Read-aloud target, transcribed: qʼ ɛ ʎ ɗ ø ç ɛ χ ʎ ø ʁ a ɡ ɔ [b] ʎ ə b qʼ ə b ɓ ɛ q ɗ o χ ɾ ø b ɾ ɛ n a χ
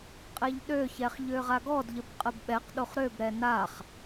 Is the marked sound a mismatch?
yes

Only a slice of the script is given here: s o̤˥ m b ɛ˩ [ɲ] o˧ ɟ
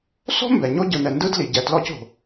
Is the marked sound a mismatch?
no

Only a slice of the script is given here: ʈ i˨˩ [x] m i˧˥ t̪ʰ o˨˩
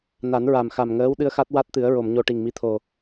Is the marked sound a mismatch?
yes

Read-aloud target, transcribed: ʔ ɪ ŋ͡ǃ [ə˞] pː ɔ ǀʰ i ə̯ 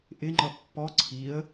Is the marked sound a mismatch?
yes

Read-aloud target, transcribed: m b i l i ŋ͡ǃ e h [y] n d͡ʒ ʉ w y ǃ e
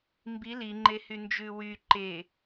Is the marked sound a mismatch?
no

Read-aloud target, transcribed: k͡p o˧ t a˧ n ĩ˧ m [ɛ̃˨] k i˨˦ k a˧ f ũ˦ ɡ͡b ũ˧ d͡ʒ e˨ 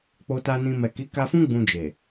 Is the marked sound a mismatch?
yes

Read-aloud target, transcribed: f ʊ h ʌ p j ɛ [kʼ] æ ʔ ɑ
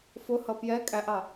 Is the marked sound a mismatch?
no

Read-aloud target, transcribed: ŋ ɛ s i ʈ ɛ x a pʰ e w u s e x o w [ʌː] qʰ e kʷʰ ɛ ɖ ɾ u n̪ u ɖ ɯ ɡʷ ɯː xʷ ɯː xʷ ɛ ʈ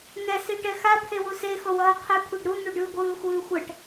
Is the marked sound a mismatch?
no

